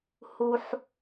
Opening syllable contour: high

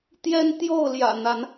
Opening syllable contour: high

